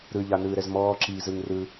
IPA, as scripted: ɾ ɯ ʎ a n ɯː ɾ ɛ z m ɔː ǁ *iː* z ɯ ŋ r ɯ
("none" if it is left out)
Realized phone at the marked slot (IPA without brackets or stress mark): iː